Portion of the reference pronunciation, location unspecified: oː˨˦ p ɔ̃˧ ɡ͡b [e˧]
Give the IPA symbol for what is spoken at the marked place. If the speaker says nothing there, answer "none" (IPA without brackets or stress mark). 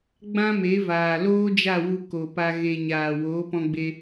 e˧